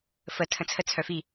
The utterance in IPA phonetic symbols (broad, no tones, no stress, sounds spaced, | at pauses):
f ə tʰ ə̃ t͡sʰ ə t͡sʰ œ f i